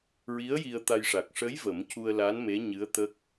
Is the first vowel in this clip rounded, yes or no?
no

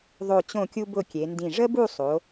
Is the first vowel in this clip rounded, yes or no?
yes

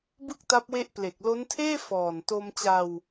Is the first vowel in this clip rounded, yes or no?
no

